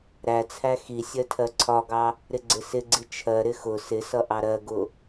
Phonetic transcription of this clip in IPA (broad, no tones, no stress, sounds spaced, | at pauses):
ɾ æ t͡sʰ æ x i sʲ ɜ tʰ ɜ ǀʰ ɒ ɡ ɑ | ɾ ɪ ɡ͡ǀ ɪ s ɪ ɡ͡ǀ i t͡ʃʰ ɜ ɾ ɪ x ʊ s ɪ s ʌ ʔ ɑ ɾ ɜ ɡ ʊ